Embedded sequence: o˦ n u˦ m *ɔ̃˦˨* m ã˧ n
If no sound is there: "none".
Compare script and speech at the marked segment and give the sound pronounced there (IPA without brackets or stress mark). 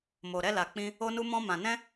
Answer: ɔ̃˦